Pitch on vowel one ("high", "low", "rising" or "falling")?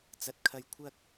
low